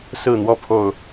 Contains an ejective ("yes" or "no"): no